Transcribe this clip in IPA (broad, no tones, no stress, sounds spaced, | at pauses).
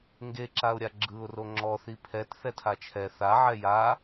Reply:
ŋ ɡ e ǁ a ʊ̯ ɾʲ a ɡ͡ǁ ɯ ʊ̯ r o ŋ͡ǁ ɔ θ i pʰ ɛ t θ ɛ tʰ a t͡ʃʰ ɛ θ a ʕ ɛ j a